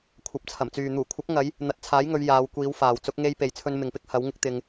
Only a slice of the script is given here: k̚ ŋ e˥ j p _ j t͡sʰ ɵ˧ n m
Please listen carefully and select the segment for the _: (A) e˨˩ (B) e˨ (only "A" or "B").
B